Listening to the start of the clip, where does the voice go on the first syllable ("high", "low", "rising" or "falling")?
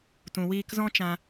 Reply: low